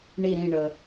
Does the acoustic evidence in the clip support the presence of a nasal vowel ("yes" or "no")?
yes